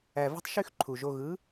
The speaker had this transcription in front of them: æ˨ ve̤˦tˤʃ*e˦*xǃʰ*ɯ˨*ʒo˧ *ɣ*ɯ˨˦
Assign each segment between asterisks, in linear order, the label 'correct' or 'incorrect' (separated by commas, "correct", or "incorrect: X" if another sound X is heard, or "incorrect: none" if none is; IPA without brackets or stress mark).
incorrect: y˦, incorrect: u˨, correct